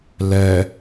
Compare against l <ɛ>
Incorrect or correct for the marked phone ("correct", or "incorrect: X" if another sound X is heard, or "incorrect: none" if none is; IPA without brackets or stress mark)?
correct